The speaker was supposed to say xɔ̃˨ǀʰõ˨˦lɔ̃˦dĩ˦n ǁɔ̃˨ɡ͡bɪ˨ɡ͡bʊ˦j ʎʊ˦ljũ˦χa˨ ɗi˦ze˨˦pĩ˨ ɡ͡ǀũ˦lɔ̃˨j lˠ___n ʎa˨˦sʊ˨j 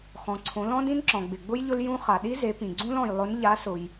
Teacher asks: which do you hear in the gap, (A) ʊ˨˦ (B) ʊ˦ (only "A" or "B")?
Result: A